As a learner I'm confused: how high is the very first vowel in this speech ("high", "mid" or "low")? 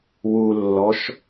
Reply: high